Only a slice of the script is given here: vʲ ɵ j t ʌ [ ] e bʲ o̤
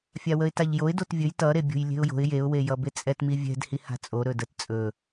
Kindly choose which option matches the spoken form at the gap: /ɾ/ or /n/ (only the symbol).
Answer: ɾ